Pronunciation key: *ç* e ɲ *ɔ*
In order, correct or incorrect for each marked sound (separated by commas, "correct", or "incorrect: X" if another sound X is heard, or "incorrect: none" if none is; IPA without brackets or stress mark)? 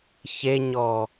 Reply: correct, correct